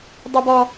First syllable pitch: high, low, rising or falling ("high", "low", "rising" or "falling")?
high